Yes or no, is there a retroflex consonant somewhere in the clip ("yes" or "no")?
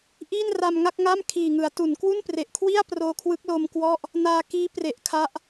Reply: no